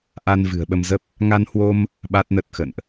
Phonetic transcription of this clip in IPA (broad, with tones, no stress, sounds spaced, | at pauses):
ʔ a˧ n v ɨ̤˨˩ ə̯ ɓ ə˧ m z ə˦˥ p̚ | ŋ a˧ n h w o˧ m | ɓ a˦˥ t̚ n ə˦˥ t̚ x ə̰˧˨ n ʔ